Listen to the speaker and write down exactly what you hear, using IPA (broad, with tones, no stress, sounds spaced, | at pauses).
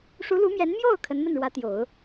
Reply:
ʂ u˧˥ l u˧˥ m j ɛ˧˥ n m j o˥˩ ʊ̯ kʰ ə˧˥ n m ə˥˩ n ɻ w ä˧˥ t̪ j o˨˩˦ ʊ̯